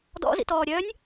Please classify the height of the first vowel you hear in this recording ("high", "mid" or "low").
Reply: mid